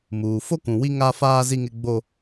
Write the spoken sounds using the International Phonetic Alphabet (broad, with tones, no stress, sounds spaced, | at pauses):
m uː˨ f o˦ k ũ˨ w i˦ ŋ a˦ f aː˦ z i˦ ŋ ɪ˦ ɡ͡b o˦